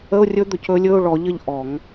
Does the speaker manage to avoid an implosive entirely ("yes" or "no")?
yes